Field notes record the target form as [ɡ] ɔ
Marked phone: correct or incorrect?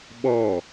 incorrect: ɓ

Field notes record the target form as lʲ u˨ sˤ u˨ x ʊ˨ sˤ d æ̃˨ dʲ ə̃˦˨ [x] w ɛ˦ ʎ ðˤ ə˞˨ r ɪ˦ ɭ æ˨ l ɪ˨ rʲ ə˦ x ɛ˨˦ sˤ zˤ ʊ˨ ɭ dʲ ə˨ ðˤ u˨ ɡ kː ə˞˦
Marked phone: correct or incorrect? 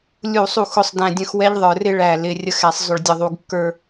correct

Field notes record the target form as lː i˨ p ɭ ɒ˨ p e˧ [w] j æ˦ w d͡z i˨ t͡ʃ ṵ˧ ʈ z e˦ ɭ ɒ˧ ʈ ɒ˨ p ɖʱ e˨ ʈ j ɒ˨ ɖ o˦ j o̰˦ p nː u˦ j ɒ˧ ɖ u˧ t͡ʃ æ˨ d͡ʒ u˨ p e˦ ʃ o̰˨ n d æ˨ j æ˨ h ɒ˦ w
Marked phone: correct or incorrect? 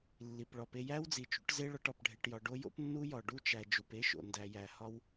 incorrect: none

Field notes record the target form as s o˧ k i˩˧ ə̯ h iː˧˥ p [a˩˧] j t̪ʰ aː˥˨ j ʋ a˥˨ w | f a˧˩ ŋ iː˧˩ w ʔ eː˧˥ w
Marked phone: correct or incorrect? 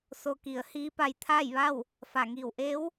incorrect: a˧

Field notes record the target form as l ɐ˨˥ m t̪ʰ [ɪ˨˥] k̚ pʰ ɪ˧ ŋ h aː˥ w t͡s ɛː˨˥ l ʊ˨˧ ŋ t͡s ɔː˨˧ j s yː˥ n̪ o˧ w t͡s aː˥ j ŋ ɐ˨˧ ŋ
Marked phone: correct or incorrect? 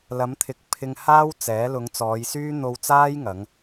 correct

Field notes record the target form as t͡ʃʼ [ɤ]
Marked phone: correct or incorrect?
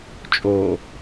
incorrect: o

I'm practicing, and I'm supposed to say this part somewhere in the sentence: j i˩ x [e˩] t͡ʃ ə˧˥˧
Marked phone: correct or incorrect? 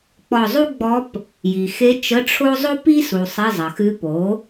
incorrect: e˧˥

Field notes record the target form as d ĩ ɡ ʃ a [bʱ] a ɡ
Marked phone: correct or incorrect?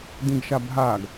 correct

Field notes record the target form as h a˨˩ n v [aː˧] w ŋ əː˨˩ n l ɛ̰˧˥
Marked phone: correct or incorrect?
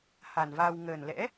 correct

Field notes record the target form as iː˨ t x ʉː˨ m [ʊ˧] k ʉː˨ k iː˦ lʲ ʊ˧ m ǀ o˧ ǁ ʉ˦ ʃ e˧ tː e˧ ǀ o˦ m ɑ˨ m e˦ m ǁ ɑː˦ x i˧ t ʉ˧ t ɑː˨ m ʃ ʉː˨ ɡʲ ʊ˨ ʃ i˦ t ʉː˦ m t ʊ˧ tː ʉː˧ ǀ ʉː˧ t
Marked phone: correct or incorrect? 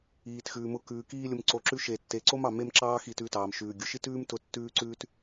correct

